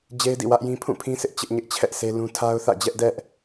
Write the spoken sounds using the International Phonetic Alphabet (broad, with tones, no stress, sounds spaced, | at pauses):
d͡ʑ e˦ ɪ̯ d ḭ˦˨ w ä˦ ʔ j ĩ˦ pʰ ũ˦˨ pʰ ĩ˦ s ɪ˦ ʔ t͡ɕ ɪ˦ ʔ ɲ ɪ˦ ʔ t͡ɕʰ ɛ˦ ʔ s e˦ l ũ˦ tʰ a˦ ʊ̯ θ ä̰˦˨ d͡ʑ ɛ˦ ʔ d ɛ˦ ʔ